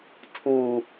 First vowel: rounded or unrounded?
rounded